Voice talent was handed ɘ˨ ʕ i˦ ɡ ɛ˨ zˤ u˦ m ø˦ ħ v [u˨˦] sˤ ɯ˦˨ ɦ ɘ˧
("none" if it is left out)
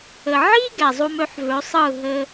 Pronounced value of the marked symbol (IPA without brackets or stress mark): ø˨˦